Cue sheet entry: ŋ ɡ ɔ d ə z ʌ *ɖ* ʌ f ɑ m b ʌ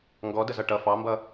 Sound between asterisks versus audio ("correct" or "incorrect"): incorrect